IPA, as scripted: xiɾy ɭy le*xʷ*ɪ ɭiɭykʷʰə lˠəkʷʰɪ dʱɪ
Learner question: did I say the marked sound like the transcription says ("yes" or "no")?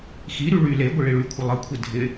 no